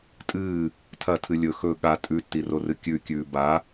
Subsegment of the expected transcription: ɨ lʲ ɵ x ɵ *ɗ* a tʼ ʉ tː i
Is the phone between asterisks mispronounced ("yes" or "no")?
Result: yes